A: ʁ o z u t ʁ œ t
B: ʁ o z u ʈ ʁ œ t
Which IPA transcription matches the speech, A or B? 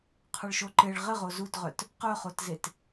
A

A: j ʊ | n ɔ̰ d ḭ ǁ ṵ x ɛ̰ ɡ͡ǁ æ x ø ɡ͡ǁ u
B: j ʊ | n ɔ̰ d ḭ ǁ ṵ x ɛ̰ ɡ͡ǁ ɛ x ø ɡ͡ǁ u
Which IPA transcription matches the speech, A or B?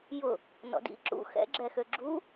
B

